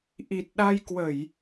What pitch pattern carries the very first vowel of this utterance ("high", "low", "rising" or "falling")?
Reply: low